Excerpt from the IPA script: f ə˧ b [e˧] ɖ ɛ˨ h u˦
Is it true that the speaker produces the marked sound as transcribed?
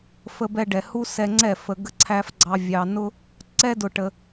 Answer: no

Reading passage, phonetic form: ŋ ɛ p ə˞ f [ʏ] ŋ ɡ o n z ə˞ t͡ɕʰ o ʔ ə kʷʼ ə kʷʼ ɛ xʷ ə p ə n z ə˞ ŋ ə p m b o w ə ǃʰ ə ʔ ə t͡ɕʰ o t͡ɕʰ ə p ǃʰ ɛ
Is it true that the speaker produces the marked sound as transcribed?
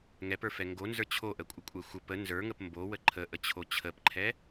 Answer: no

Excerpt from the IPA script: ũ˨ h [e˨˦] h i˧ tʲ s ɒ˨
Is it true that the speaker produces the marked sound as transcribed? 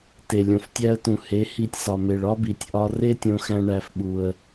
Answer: yes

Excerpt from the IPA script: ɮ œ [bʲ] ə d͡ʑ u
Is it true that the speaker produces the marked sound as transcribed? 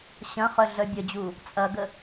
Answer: yes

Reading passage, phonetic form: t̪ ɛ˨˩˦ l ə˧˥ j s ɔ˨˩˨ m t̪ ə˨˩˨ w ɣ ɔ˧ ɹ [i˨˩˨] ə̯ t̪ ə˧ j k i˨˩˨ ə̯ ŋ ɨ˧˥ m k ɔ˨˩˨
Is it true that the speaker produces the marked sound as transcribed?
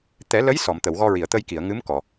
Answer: yes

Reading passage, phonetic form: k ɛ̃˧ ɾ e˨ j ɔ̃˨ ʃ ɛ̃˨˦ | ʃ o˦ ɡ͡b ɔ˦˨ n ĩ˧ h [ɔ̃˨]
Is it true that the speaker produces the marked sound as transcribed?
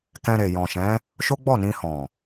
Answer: yes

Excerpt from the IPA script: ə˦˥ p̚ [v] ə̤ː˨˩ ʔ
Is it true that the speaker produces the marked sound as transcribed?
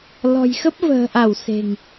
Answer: yes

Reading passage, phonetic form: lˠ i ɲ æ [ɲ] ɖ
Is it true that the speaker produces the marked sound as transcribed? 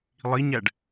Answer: no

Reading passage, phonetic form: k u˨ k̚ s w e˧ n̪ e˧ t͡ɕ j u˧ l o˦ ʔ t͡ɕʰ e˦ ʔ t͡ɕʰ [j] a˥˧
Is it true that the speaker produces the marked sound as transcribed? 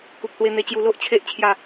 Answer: yes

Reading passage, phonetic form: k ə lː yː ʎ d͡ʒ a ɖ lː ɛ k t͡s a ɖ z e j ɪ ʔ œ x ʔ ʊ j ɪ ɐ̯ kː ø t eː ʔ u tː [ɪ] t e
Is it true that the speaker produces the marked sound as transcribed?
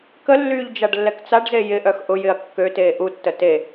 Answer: no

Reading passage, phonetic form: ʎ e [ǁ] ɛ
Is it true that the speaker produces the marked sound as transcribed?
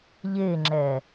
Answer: no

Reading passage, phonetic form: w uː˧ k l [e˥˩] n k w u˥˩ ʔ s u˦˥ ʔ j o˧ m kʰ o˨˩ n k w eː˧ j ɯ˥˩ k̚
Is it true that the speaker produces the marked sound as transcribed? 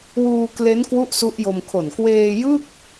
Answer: no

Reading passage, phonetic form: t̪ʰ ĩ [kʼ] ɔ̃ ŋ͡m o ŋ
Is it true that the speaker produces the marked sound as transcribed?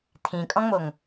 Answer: yes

